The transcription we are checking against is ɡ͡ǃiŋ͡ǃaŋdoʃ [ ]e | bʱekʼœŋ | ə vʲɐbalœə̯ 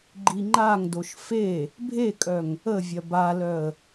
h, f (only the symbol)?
f